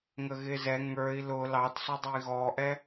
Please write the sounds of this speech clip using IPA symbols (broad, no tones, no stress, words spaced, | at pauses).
ŋəɣɪːzɛ ŋə˞i̯ lʊ lɑtsɔdˤui̯ ɣɔʔɛ